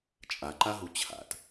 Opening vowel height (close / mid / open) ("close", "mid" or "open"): open